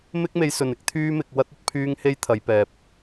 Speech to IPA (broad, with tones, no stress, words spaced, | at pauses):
mɪ˥k̚me˧jsɵ˨n ɪ˥k̚t̪ʰyː˥mɪ˧k̚ wɐ˥t̚ɐ˥t̚ pʰyː˥ŋ he˥jt̪ʰɐ˨˧jpɛː˨p̚